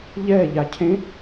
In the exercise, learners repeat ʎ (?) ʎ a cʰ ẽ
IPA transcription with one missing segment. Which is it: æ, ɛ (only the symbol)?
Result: ɛ